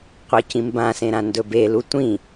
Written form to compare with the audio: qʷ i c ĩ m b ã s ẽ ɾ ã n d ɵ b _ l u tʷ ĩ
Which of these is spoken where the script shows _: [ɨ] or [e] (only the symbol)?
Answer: e